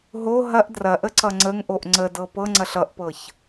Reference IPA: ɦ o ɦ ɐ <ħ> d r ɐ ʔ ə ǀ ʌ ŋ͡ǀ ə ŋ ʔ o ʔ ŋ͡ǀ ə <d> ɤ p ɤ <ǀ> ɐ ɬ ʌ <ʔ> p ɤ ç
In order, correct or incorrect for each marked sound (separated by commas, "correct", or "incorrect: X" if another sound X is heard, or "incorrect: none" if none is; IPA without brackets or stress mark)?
incorrect: ʔ, correct, incorrect: ŋ͡ǀ, correct